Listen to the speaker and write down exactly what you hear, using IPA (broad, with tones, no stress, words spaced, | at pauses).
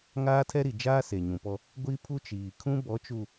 ŋaː˦tʰɛ˦ɾi˨d͡ʒaː˦ se˨ɲũ˨pɔ˦ | ɡʷi˦ pʰu˦ t͡ʃiː˨ kʰũ˦bɔ˨˦t͡ʃu˨